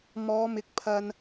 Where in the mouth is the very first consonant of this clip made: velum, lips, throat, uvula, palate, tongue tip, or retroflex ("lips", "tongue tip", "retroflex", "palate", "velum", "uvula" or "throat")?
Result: lips